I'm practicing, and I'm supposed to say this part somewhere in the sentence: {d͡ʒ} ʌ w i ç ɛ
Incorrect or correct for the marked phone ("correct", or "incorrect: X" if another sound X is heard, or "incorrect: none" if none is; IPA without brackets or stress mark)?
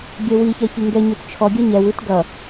incorrect: ɡʲ